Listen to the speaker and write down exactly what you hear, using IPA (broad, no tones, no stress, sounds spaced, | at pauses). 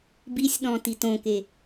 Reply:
b i sʲ ɗ ɔ̃ t i t õ k e